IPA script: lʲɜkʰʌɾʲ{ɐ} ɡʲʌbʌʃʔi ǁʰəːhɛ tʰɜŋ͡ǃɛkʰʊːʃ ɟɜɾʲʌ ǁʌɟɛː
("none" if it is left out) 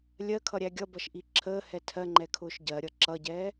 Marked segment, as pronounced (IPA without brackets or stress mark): æ